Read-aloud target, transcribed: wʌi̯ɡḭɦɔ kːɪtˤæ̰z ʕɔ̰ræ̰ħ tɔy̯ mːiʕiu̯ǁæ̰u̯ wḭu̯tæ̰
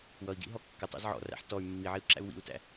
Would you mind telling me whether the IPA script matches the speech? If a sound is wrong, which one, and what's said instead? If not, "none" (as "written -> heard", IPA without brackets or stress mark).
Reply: none